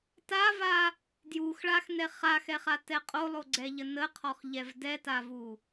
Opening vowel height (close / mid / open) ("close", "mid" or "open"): open